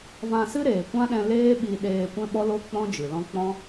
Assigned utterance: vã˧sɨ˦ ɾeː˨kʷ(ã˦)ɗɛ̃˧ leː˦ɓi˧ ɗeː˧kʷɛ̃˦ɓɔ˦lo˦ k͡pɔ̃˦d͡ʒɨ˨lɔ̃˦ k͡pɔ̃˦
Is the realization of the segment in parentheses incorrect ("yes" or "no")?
no